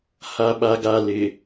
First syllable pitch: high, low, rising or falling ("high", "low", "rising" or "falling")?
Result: low